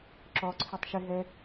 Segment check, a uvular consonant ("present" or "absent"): absent